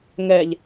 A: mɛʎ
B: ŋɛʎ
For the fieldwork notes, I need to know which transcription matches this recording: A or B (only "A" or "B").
B